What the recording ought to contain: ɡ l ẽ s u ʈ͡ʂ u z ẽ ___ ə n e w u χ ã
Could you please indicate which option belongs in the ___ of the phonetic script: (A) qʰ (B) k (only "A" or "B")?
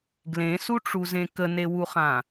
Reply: B